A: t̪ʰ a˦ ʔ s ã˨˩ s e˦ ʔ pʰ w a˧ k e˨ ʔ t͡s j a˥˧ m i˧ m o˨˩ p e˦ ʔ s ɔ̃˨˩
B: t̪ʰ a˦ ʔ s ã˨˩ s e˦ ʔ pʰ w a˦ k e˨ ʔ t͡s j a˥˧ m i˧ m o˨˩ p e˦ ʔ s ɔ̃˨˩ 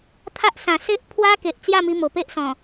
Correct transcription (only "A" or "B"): B